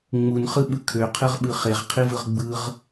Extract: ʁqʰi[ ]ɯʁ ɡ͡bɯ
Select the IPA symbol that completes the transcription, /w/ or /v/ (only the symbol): v